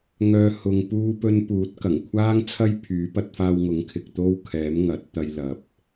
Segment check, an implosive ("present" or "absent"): absent